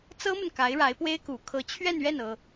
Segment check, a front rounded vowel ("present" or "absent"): absent